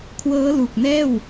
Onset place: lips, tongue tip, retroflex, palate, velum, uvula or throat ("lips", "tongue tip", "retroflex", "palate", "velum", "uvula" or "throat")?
velum